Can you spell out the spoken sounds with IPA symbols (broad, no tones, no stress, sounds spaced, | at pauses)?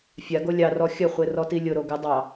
fʲ a ɡ o lʲ ɑ r ɔ xʲ ə χʷ e r ɔ t i lʲ ʊ ɾ o ɡ ɪ dˤ ɑ